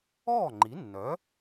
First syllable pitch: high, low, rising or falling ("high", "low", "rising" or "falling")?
falling